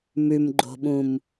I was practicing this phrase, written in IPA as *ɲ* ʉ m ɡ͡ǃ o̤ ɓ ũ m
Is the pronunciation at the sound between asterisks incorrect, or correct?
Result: incorrect